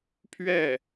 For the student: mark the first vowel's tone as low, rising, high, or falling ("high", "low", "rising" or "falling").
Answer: falling